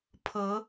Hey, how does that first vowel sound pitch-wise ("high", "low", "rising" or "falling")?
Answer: rising